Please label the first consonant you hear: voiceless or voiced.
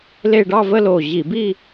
voiced